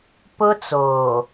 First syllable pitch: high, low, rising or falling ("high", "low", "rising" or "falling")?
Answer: high